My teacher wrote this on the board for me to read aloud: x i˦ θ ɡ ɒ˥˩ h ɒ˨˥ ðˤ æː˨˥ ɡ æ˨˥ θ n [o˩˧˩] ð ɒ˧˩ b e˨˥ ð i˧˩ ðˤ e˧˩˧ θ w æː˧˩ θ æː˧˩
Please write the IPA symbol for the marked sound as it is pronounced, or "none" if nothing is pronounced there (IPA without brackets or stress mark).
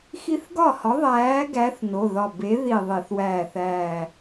o˩˧˩